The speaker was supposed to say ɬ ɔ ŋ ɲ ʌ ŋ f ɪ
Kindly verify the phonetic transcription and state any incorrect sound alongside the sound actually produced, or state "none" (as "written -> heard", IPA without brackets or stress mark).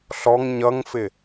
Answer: none